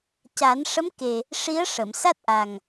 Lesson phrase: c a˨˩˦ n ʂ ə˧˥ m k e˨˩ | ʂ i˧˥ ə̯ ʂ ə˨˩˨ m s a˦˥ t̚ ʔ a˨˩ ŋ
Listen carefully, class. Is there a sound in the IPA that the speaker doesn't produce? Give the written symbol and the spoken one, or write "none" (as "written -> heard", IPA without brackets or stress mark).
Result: none